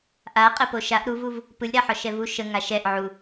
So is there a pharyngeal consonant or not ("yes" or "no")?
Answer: yes